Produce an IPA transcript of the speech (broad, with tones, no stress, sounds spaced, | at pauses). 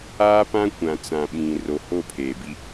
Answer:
aː˦ p ã˦ kʷ ã˨ t͡s ã˨ ɓ ĩ˨ r o˨ h o˦˨ pʰ eː˨ b i˦